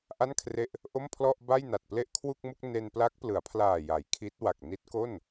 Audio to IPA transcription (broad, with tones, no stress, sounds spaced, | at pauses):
ʔ a˥˩ n kʰ r e˥˩ ʔ | ʔ o˥˩ m pʰ l ɔ˥˩ ʔ b a˥˩ j n a˨˩ t̚ p l e˥˩ ʔ kʰ w u˥˩ k̚ m u˥˩ k̚ n e˧ n p l a˦˥ k̚ p l ɯ˩˦ a̯ pʰ l aː˨˩ j a˩˦ j kʰ i˦˥ t̚ w a˨˩ k̚ n i˦˥ t̚ k o˥˩ n